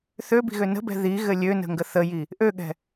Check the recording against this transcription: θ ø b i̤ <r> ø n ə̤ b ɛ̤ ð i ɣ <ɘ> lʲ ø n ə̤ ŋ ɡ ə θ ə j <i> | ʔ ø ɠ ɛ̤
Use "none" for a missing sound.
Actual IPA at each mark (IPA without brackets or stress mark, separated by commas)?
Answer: ɣ, ɘ, i